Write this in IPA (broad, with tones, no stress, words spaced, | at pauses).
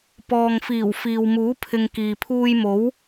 pɔː˨ŋfiː˨˩w fiː˨wmuː˨˥pʰɪ˨ŋ kiː˨pʰuː˧jmo˨˥w